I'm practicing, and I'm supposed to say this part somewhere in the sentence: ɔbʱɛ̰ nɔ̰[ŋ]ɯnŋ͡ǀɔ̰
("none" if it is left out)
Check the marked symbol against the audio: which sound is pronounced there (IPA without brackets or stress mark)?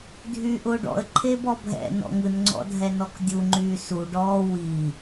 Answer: ŋ